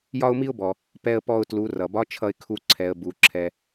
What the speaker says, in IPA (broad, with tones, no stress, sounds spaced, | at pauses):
j ɒ˥ ʊ̯ m i˥ ʊ̯ b ɔ˩ | p ɛ˧ ə̯ p ɔ˧ ʊ̯ t l u˩˧ r ʌ˩ b ɒ˧˥ t͡ʃʰ ʌ˧ ɪ̯ kʰ u˧ ǀʰ ɛ˩˧ ə̯ b u˩˧ ǁʰ ɛ˧